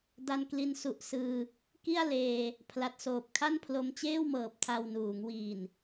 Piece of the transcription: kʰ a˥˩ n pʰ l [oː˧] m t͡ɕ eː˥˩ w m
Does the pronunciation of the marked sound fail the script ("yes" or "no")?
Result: yes